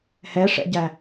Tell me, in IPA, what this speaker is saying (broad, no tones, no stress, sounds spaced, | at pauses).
h ɛ ʂ ɛ̰ ɟ æ